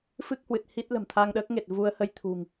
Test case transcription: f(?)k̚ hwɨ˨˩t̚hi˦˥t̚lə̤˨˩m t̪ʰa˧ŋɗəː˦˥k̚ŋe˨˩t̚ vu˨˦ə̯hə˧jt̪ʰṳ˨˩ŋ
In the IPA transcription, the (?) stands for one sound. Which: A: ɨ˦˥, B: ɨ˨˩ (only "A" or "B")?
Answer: A